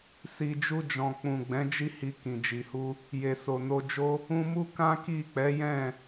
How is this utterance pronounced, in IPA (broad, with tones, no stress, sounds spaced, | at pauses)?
s i˨ d͡ʒ u˧ d͡ʒ ɔ̃˨ k͡p ũ˨ ɡ͡b ɛ̃˨˦ d͡ʒ i˦ h i˧ k ĩ˨ d͡ʒ i˨ h u˧ | j e˨ s o˨ n o˧ d͡ʒ o˦ | ũ˧ m u˦ k ã˦ k i˦˨ k͡p ɛ˨˦ j ɛ̃˦˨